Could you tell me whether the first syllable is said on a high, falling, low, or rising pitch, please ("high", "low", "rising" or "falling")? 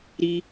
high